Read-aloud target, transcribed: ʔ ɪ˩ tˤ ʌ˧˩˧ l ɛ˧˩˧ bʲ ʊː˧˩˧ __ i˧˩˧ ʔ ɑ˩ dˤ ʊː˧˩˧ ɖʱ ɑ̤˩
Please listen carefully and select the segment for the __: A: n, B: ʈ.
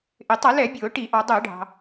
B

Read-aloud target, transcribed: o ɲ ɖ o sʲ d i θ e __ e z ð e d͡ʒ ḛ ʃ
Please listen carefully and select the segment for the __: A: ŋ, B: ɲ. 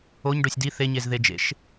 B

